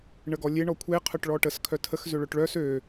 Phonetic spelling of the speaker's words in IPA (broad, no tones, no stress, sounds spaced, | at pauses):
ɳ ə ɡ ɔ lʲ e ɳ ɔ kʷʰ e qʰ œ ʈ ɭ ɔ ʈ ə s kʰ œ tʰ ə x z ø ɭ œ ʈ ɭ œ s ø